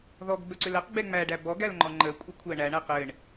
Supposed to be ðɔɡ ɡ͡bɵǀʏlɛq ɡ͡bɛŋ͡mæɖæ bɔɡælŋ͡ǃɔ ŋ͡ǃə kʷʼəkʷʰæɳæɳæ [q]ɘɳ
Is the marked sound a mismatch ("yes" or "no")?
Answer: no